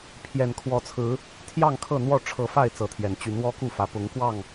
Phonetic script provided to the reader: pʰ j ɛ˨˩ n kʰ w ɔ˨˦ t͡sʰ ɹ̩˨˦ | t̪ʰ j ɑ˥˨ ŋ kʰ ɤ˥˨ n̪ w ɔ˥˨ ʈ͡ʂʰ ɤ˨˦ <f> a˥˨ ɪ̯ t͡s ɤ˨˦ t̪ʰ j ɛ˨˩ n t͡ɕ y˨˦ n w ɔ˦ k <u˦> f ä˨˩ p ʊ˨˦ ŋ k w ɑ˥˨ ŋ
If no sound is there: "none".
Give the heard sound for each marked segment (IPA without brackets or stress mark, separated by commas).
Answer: f, u˥˨